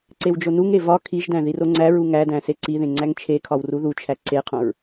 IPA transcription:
ǀ e w d͡ʒ o n u ŋ e v ɒ kʰ i ʒ d æ̃ ð i r o ŋ͡ǀ æ ɹ u ŋ æ d æ̃ s e ǀ i ð ẽ ŋ͡ǀ æ ŋ t͡ʃʰ e kʰ ɒ w r u ð u t͡ʃʰ æ ǀ e qʰ õ ɹ

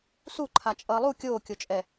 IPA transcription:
s u ǃʰ a t͡ʃʼ ʌː lˠ u kʲ oː kʲ o t͡ʃʼ ɛ

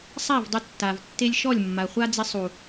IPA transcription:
sˤ a˦˨ v dˤ ʊ˧ tː a˨ v tː e˧ lʲ ʃ ɔ˦˨ lʲ mː a˨ χʷ a˦ d͡z ɪ˧ sˤ u˨

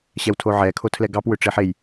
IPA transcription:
ɕ ɛ w tʰ o ʕ ɛ kʰ o tʰ l ɛ ɡ ɑ p w ʏ ʈ͡ʂ e ħ e j

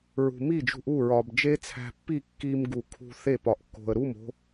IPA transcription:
ɹ ṳ˨ m i˦˨ d͡ʒ ṳ˧ ʔ u˦˨ ɹ ɒ˨ b d͡ʒ e˦ t͡sʰ æ̤˧ pː i˦˨ kː i˧ m ɡ u˨ kʰ ṳ˧ θ e˦˨ p ɒ˨ ʔ kː o̤˨ ə̯ ɾ u˦˨ m o̤˧

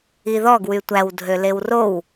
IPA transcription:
i ð ɔ ɡ w y tʷ æ w dʱ ø l e w r o w

